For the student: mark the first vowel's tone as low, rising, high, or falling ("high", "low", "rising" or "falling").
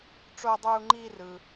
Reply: high